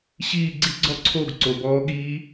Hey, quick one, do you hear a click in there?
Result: yes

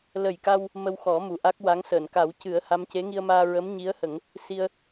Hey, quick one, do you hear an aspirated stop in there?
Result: no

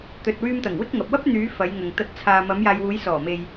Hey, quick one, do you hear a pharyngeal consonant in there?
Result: no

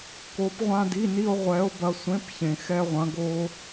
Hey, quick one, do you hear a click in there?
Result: no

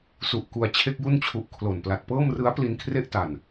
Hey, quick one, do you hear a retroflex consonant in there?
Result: no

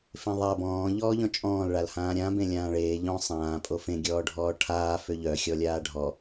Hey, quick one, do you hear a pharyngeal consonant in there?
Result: no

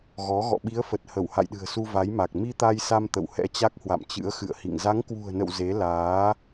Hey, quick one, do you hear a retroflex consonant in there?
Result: no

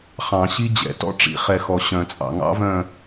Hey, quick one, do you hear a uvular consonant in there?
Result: yes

